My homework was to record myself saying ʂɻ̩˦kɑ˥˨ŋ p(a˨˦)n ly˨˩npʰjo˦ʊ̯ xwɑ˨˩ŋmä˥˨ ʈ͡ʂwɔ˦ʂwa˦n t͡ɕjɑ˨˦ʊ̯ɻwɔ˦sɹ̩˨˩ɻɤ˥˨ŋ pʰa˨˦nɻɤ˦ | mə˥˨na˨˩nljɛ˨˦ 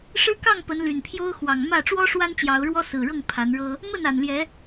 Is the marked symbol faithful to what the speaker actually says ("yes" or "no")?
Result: no